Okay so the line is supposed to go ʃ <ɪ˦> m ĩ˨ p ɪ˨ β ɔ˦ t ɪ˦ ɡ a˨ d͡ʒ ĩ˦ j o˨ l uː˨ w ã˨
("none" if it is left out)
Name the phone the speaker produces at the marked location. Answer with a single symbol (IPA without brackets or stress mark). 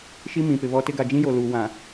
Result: i˦